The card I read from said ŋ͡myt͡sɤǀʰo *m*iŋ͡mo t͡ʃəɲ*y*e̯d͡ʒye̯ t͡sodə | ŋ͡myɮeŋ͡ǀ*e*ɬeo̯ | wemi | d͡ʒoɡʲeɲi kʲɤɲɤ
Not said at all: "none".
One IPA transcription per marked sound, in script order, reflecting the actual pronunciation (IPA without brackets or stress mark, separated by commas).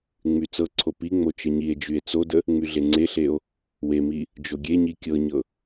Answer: p, i, e